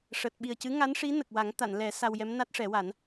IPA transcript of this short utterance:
ʂ əː˨˩ t̚ ɓ i˨˩ ə̯ c ɨ˧˥ ŋ a˧˥ n ʂ i˧˥ n ə˨˩ k̚ w a˨˩˦ ŋ t̪ a˨˩˨ n l ɛ˨˩˦ s a˧ w j ɛ˧˥ m n a˦˥ t̚ ʂ ɛ˨˩˦ w a˨˩˦ n

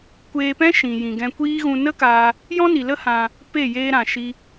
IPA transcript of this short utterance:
kʷ eː˧ p ɛ̃˦ ʃ ĩ˨ j ĩ˨ ɡ ɛ̃˧ kʷ iː˦ ɣ ũ˧ n ə˦ k aː˧ | j ɔ̃˦ n i˨ l ə˦ h ã˧ | p e˦˨ j eː˦ ɾ ã˨ ʃ i˦

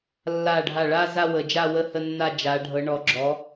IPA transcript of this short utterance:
lː a˧˩ ɖʱ a˧˩ ɭ a˥˧ z a˥˧ w ə˩˧ d͡ʒ a˥˧ w ə˥˧ h ə˥˧ nː a˥˧ d͡ʒ a˩˧ ɖʱ ɤ˨˥ ɳ ɔ˨˥ ɡ͡ǁ ɔ˨˥

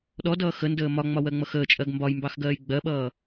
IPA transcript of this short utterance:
ɗ ɔ d ʌː x ə n d əː m ɒ ŋ͡m ɒ w ɜ ŋ͡m ʌ x əː t͡ʃʼ ɜ ɡ m b ɒ j m b ɑ x ɡ ɜː j ɡ͡b ɜ ɓ ʌː

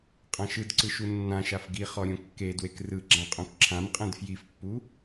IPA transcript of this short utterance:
qʼ ã ʃ ɯ d ǀ ɯ ʃ u nː ã ʃ a f ɡ i χ ɔ ɾʲ õ kː e d w e k r ɯ ɡ͡ǁ ã qʼ õ k ǁʰ ã m qʼ ɛ̃ d f j i f pː u

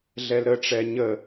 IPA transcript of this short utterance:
ɮ ɛ l ɾ ə ʈ͡ʂ ɛ ɲ ə

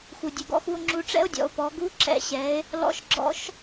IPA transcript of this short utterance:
x u˩ dʲ u˩ ɡ ɔ̰˧ x u˧ o̯ ŋ͡ǁ u˧ ʈ͡ʂ ɛ̰˥ o̯ dʲ ɔ̰˩˧ o̯ p ɔ˩˧ ɡ u˧˥ ǁ ɛ̰˧ ɕ ɛ˩˧ e̯ | l ɔ̰˧ ʃ ɡ͡ǁ ɔ̰˧˥ ʃ

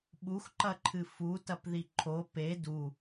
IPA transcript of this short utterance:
ɓ u x ǃ ɐ ǃʰ ɨ f u t ɐ p ð i ǃʰ o p e d u

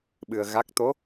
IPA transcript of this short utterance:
ɓ ɨ˧ ə̯ ɣ a˦˥ k̚ t̪ o˧˥

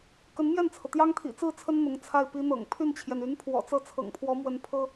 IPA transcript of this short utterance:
k ə˧˥ n m j ɛ˥˩ n t͡sʰ ɤ˩ t̪ j ɑ˥ ŋ t̪ʰ ḭ˨˩ t͡s ɹ̩˥˩ t͡sʰ ə˥ n n̪ ʊ˧˥ ŋ t͡sʰ a˥˩ ɪ̯ p i˥ n̪ ɤ̰˨˩ ŋ pʰ y˥˩ n t͡ɕʰ j ɛ˩ n y˧˥ n pʰ w ɔ̰˨˩ t͡s ɤ˥˩ t͡sʰ ɤ̰˨˩ ŋ pʰ w ɔ˧˥ m w ə˧˥ n pʰ ɤ˥

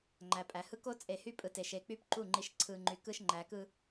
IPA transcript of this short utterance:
ŋ͡ǃ æ˨ pʼ æ˨ h ɯ˦ k o˦ t͡sʼ e˨ h y˦ pʼ ɯ˨ t e˨ ʃ e˨ k͡p y˦ p ǃ u˦˨ ŋ͡ǃ i˨ ʃ ǀʰ ɯ˨ ŋ͡ǃ y˨ k ɯ˦ ʃ ŋ͡ǃ æ˨ k ɯ˦

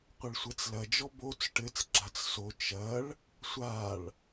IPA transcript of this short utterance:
qʷ ɛ ɭ sʷ ɛ t͡s l ɐ d͡ʒ ɔ b o t͡s ʈ ɘ t͡s ɡ͡ǁ a t͡s s o t͡ʃ ɐ ɭ | sʷ a ɭ

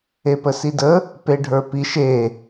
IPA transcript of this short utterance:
e p ə s i d ə | p e ɖʱ ə˞ p i ʃ e

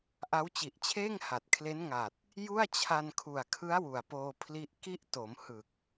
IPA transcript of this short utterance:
ʔ a˦˥ w t͡ɕ i˨˩ ʔ t͡ɕʰ eː˥˩ ŋ h a˨˩ t̚ kʰ l e˦˥ n ŋ a˨˩ t̚ | j u˥˩ a̯ t͡ɕʰ a˧ n kʰ u˨˩ a̯ kʰ ɯ˦˥ a̯ w u˨˩ a̯ p oː˧ pʰ l i˦˥ ʔ k i˦˥ ʔ t o˩˦ m h ɯ˨˩ k̚

